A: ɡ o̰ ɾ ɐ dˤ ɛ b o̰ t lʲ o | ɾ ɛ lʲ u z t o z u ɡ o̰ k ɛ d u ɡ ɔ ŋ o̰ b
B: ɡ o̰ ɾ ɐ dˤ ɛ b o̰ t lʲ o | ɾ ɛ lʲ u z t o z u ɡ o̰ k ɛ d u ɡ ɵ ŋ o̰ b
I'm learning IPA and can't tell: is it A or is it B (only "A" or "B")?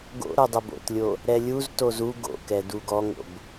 A